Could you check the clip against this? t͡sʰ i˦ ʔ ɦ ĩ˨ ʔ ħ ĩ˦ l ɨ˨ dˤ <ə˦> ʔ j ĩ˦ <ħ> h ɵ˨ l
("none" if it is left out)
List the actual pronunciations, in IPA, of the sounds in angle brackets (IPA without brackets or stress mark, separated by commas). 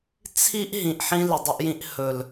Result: ɵ˦, ʔ